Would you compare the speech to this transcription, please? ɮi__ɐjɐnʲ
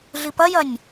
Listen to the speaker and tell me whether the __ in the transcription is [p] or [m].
p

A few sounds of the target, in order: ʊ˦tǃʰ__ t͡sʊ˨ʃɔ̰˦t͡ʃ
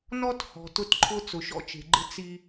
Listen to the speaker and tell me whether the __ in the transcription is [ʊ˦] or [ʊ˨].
ʊ˦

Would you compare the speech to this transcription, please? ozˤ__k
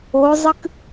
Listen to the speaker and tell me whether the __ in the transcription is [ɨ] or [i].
ɨ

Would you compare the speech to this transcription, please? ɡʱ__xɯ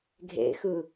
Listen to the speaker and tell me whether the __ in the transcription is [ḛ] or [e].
ḛ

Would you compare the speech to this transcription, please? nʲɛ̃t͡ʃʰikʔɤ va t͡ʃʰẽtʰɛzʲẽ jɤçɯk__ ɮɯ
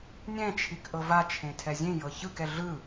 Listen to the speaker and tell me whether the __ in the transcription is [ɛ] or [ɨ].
ɛ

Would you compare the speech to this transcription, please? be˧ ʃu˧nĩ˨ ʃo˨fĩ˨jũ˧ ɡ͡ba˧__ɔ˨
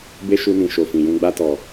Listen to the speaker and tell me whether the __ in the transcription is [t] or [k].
t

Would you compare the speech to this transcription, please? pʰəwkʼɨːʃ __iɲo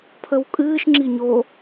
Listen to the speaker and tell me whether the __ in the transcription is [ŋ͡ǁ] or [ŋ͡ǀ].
ŋ͡ǁ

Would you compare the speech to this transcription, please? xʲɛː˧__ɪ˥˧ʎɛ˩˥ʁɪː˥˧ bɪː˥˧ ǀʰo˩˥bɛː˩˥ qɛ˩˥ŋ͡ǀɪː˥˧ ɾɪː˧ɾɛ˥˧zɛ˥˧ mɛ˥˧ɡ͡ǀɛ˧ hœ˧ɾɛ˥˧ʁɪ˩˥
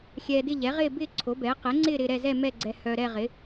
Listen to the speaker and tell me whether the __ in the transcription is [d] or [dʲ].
d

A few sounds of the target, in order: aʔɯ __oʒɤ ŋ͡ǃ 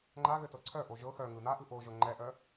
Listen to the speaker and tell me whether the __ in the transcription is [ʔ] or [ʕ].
ʔ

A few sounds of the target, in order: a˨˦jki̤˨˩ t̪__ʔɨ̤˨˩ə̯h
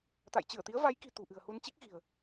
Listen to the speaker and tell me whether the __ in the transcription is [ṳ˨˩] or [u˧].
ṳ˨˩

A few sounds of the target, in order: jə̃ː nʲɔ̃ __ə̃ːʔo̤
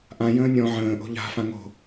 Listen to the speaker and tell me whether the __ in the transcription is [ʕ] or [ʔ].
ʕ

